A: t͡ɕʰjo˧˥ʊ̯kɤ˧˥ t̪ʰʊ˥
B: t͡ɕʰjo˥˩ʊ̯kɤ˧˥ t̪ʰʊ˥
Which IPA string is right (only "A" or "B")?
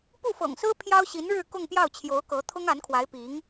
A